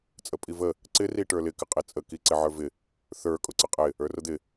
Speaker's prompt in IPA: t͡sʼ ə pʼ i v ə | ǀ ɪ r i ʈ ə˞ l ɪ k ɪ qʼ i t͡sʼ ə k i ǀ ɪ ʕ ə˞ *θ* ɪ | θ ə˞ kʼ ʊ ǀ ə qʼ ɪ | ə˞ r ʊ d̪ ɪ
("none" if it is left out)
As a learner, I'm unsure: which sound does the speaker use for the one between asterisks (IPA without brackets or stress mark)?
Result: v